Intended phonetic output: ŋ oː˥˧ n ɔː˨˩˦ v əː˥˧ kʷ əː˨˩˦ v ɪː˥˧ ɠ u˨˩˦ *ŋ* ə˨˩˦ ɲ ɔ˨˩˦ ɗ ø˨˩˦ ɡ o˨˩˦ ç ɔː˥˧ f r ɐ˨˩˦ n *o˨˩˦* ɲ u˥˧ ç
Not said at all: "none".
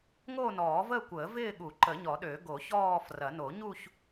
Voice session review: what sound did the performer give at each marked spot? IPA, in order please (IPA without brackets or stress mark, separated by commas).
ǃ, o˨˩˦